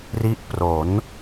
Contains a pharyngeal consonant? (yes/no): no